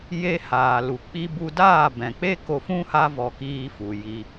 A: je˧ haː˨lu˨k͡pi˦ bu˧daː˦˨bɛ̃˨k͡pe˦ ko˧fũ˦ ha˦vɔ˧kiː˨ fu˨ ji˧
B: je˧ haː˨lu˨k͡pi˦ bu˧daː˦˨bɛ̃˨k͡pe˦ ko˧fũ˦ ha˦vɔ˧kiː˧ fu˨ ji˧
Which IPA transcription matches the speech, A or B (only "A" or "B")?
B